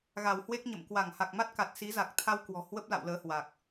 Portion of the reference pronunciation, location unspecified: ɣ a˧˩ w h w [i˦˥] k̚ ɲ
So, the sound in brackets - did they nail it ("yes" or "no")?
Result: no